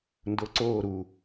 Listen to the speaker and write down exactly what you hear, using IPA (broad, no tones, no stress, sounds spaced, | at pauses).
n d o ǀ oː ɾ u